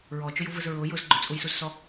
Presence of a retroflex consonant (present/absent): absent